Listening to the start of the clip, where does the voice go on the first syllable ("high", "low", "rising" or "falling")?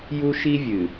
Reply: high